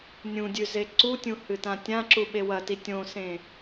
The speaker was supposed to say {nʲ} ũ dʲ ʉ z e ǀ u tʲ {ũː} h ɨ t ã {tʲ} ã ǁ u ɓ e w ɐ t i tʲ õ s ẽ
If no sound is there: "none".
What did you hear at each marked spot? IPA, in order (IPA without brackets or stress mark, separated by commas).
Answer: nʲ, ũ, tʲ